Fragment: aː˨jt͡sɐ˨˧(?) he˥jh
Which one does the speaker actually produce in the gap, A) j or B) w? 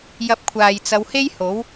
B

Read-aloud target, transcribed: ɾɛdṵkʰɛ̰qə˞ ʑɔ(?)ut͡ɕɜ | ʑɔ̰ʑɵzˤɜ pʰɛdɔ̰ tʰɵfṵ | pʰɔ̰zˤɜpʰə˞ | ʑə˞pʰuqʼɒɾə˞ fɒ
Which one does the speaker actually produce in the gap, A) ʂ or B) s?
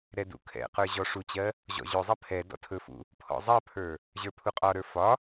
A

